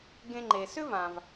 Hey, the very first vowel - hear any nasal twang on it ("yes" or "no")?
yes